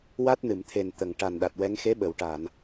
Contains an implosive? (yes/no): yes